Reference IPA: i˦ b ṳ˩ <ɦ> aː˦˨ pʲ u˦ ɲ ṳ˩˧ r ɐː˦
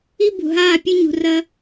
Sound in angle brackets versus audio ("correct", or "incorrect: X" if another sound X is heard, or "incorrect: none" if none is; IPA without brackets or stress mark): correct